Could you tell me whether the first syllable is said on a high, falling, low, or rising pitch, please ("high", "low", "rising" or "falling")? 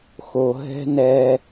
low